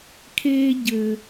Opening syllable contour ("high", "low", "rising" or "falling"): high